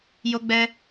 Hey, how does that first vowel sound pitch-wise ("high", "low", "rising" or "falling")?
high